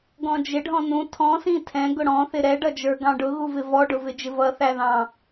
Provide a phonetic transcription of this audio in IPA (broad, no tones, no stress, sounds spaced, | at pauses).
ɡ ɔ̃ d͡ʒ ɪ ɖʱ ɔ̃ n ũ tʰ ɔ̃ s ĩ tʰ ɛ̃ ɡ ʊ ɽ ɔ̃ θ ɪ ɾ ɛ ɖ ʌ d͡ʒ ə˞ ɡ ɑ̃ ɖ ʊ ɣ u v ɪ v ɔ ɖ ʊ v ɪ d͡ʒ ɪ v ʌ θ æ ð ɑ̃